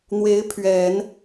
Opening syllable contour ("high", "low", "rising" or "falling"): rising